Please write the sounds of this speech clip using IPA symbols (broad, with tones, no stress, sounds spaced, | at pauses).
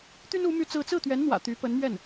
t̪ y˥ n u˧˥ m y˥˧ t͡s ɹ̩˥˧ t͡s ɹ̩˥˩ t̪ ɥ ɛ˧˥ n n̪ w ä̰˨˩ t̪ y˧˥ p ə˧˥ n m ɥ ɛ˥˩ n